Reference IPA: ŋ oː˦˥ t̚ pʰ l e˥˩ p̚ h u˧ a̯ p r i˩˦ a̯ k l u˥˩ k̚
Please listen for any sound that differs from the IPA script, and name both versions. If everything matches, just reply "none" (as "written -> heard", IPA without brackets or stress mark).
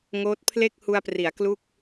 p̚ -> k̚